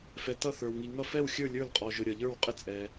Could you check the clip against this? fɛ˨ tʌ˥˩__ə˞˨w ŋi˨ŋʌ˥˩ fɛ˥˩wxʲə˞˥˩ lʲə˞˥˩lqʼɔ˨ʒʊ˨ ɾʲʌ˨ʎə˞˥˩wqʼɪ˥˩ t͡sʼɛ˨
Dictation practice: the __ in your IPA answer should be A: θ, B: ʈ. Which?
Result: A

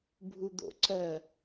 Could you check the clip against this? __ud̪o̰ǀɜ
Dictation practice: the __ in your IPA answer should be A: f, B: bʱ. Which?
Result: B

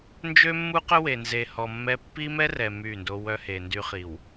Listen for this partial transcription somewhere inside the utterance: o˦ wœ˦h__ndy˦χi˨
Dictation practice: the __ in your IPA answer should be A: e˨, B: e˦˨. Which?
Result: A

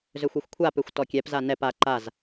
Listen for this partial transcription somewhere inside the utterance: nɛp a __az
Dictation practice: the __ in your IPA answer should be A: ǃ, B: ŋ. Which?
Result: A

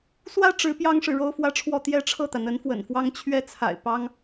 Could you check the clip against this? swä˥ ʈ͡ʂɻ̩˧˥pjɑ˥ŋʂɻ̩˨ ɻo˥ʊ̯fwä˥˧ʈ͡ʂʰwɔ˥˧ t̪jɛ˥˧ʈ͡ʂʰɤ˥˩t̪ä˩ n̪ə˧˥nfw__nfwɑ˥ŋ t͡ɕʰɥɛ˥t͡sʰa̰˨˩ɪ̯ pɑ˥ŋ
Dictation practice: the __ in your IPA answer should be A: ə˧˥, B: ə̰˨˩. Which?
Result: B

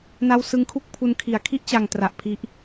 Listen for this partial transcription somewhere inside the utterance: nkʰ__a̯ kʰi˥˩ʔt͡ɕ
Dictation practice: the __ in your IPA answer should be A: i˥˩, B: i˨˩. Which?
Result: B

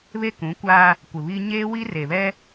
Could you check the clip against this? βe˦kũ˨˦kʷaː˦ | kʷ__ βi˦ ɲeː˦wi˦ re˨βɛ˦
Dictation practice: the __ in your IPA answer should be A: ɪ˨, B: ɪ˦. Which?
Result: A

